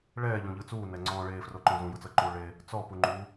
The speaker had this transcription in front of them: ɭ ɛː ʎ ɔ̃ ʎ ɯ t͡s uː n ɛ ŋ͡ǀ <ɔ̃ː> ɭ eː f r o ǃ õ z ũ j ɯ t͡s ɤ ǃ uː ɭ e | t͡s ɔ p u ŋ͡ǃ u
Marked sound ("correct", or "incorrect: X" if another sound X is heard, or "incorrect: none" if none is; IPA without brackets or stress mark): correct